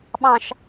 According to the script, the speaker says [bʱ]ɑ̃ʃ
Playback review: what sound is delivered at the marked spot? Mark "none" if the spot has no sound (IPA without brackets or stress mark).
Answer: ɓ